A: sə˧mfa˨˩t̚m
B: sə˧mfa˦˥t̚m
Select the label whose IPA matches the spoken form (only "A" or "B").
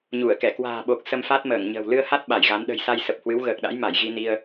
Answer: B